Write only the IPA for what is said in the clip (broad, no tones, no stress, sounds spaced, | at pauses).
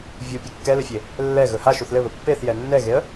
vʲ u pʲ ɛ kː ɛ l ɘ fʲ e | lː ɛ ɣ ɵ h a ʃ u θ l ɘ β ɵ pː e θ j ɛ nː ɛ ɣ e ə̯